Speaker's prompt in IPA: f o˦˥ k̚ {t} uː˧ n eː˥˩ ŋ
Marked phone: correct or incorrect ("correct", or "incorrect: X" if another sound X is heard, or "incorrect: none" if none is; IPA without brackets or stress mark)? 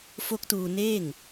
correct